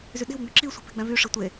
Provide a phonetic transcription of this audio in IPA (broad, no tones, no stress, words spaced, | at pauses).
zyɗe̤wŋ͡mʉ ǁisʷi̤pe̤ ɡ͡bæ̃vyʂi tʷe